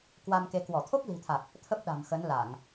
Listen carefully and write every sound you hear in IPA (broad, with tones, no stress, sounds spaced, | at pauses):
k w a˧ m k e˨˦ k w ɔ˧˩ t̪ʰ o˦˥ k̚ l i̤˨˩ t̪ʰ a˨˩ k̚ | t̪ʰ ə˦˥ p̚ ɗ a̤˨˩ m x ə˨˦ n l a˧˩˨ ŋ